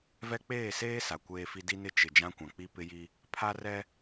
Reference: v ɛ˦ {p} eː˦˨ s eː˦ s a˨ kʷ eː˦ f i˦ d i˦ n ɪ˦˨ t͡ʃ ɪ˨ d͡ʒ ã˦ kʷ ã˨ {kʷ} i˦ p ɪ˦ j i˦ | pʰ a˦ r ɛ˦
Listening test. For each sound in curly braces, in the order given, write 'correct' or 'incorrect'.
incorrect, incorrect

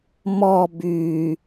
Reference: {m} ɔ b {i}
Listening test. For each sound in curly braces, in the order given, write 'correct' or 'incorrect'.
correct, incorrect

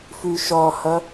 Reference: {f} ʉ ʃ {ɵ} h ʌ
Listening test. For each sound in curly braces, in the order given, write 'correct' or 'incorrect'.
correct, incorrect

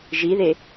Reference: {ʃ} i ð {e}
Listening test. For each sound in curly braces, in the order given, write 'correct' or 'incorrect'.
incorrect, correct

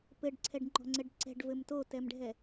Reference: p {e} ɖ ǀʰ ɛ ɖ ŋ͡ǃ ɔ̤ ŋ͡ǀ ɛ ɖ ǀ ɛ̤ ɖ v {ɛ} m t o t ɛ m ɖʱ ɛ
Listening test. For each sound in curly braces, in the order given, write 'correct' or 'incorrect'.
incorrect, incorrect

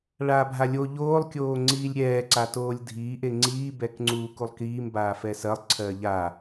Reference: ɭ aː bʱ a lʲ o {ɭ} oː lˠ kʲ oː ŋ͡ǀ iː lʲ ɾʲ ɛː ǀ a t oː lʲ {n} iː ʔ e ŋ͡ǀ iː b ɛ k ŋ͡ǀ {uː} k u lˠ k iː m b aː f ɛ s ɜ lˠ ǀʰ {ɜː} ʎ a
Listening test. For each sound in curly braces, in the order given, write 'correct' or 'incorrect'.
incorrect, incorrect, correct, correct

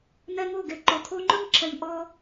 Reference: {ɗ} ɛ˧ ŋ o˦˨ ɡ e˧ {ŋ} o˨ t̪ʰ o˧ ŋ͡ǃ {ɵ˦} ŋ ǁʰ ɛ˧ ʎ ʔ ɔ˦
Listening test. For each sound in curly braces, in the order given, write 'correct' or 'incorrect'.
incorrect, incorrect, correct

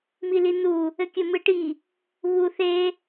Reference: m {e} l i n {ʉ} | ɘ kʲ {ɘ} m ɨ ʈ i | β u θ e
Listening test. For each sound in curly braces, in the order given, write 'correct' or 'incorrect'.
incorrect, incorrect, correct

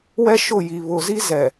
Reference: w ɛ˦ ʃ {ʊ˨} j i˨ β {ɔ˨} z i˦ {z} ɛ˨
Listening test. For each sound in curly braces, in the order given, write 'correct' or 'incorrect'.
incorrect, incorrect, correct

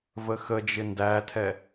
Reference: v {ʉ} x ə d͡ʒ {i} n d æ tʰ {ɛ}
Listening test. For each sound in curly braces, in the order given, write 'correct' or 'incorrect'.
incorrect, incorrect, correct

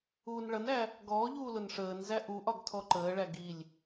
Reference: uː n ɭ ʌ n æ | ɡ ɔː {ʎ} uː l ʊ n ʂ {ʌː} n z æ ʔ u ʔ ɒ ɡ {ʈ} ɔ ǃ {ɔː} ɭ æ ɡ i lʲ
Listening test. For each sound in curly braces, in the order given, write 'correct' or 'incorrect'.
correct, incorrect, incorrect, incorrect

